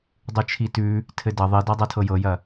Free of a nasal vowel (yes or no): yes